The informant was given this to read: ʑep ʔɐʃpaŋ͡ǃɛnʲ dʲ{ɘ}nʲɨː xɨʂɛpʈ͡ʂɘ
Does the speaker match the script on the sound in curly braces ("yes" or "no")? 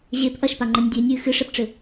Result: no